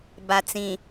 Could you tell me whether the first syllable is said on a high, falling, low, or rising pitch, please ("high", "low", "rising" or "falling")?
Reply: low